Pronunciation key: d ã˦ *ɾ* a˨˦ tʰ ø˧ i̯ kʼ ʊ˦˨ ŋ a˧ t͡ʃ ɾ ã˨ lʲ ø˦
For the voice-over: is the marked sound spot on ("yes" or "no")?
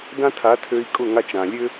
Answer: no